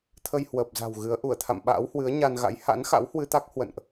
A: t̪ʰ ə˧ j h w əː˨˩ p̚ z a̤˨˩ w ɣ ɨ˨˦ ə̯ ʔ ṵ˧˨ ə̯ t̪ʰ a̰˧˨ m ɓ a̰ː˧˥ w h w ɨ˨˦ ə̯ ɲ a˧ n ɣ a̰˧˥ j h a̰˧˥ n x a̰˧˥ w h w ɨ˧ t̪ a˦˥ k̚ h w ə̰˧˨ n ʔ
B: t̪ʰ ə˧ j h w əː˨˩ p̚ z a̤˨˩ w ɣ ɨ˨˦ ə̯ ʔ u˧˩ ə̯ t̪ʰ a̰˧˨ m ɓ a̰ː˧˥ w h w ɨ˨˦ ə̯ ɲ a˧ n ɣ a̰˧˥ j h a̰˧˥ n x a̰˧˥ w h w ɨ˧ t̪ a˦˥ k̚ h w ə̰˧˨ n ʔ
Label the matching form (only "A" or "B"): B